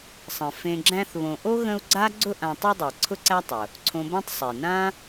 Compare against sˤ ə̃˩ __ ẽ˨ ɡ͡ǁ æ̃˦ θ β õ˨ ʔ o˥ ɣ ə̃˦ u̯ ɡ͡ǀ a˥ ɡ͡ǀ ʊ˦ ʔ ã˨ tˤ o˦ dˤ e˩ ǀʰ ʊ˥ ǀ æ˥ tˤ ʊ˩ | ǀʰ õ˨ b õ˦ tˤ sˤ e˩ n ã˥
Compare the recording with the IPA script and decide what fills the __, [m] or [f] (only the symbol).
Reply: f